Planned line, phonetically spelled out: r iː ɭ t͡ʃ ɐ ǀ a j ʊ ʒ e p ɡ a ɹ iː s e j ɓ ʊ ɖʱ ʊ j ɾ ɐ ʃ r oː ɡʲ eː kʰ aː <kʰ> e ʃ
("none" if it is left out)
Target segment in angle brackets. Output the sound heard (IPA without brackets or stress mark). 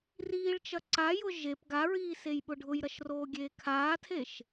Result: tʰ